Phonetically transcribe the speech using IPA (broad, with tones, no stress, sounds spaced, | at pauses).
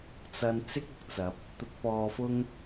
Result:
t͡s ɐ˥ n t͡s ɪ˥ k̚ ʊ˨ k̚ t͡s ɐ˨˥ p̚ | t̪ ʊ˧ k̚ p ɔː˧ f ʊ˥ ŋ